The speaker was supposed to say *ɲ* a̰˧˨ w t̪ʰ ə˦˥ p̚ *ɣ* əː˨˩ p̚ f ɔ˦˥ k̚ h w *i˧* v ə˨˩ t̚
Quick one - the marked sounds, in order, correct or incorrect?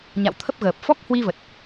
correct, correct, correct

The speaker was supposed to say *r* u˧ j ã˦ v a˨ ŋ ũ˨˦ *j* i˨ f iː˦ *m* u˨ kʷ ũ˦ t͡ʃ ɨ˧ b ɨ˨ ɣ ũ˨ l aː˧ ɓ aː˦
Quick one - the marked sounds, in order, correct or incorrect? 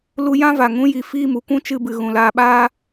incorrect: l, correct, correct

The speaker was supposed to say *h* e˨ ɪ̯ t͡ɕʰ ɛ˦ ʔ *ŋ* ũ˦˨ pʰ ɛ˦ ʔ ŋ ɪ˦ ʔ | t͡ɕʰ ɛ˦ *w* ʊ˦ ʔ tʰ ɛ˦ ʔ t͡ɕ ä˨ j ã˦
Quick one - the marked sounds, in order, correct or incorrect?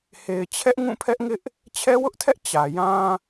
correct, correct, correct

